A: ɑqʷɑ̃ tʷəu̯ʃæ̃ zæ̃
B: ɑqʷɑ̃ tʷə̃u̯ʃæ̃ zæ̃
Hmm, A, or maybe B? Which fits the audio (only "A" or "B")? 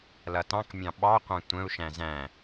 B